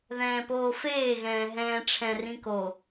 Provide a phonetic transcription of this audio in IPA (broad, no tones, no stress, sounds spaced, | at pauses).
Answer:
ð ɛ̃ː p oː f eː ɣ ɛ̃ː ɦ ɛ̃ː ʈ͡ʂʰ ɛ̃ r ĩ k o